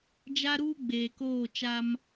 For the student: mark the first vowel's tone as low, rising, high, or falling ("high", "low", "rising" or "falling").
high